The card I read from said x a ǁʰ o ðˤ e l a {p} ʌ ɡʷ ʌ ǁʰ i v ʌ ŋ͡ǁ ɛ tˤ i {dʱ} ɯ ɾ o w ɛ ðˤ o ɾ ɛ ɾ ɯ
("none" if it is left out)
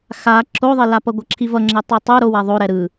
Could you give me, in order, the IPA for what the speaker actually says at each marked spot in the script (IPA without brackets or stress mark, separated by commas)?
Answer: p, tˤ